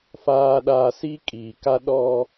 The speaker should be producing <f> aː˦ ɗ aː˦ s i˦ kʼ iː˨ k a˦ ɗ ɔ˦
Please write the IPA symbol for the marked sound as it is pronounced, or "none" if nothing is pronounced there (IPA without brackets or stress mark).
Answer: f